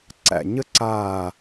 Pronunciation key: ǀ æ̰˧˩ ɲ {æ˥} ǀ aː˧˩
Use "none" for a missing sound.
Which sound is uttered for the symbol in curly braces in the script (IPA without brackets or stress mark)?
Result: ə˥